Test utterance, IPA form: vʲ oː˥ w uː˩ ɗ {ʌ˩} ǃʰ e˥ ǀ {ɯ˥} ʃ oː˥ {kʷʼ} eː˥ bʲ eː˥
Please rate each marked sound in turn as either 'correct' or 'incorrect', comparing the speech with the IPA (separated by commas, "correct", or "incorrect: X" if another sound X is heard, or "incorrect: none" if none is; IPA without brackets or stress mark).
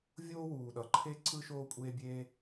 correct, correct, correct